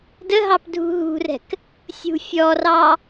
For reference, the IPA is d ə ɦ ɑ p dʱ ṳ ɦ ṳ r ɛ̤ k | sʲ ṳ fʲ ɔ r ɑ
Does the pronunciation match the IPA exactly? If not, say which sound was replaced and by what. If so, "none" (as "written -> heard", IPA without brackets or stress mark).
none